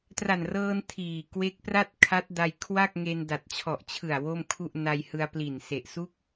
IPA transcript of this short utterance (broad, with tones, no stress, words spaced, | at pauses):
tra˨˩nrɤː˧n tʰiː˨˩ kwe˦˥k̚pra˥˩t̚kʰa˦˥t̚ da˧jkʰwa˥˩k̚ŋe˧n da˨˩t̚t͡ɕʰɔ˨˩ʔt͡ɕʰɯ˨˩a̯ wo˥˩mkʰu˥˩ʔ na˧jhɯ˧a̯pli˨˩n se˨˩ʔsu˥˩k̚